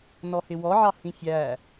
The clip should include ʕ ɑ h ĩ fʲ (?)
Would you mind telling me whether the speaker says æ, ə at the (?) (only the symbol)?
æ